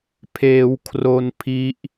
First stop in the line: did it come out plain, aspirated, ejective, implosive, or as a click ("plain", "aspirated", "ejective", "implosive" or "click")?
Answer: aspirated